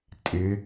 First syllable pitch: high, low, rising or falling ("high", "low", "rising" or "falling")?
rising